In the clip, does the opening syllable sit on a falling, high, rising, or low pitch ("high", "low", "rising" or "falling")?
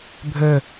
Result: falling